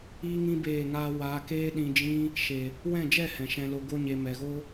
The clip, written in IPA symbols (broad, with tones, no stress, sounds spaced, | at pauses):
iː˦ ŋ ĩ˦ b eː˦˨ ŋ aː˦ w aː˧ k eː˦ ɗ ĩ˧ d͡ʒ ĩ˦ | ʃ e˨ | w ɛ̃˦˨ d͡ʒ ɛ˦˨ h ɛ̃˨ ʃ ɛ̃˧ l o˧ ɡ o˦ ɲ e˧ m ɛ˨ ɣ o˦